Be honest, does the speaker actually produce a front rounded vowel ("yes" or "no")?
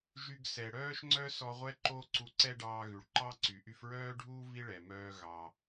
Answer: yes